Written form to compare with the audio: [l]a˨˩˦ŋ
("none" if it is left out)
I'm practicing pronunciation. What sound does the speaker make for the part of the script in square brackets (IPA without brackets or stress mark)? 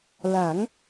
l